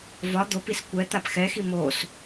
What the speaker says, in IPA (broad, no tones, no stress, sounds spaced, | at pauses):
v ɒ d̪ o p i s kʷ ɛ t̪ a p x ɛ x i m o s